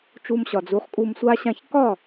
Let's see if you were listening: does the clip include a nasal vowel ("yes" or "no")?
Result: yes